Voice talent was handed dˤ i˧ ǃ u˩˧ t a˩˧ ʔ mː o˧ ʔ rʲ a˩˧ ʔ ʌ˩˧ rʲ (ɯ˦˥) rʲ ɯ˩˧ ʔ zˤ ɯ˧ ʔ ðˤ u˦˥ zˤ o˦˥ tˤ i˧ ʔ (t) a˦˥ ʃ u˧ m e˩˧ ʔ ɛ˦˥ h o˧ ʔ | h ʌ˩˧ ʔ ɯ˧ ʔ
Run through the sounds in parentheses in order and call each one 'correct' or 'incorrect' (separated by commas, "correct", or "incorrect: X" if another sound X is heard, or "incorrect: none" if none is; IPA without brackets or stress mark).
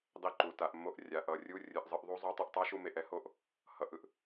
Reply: incorrect: u˦˥, incorrect: tˤ